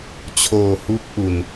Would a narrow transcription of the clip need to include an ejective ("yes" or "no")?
no